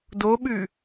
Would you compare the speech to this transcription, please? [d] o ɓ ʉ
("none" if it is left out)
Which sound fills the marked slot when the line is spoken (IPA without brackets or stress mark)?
d